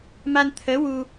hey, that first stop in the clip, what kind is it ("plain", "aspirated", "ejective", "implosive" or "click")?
aspirated